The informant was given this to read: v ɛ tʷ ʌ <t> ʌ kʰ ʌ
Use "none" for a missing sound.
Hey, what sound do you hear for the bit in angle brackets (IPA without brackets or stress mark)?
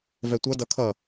d